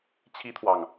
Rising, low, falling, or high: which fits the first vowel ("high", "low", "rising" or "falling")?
high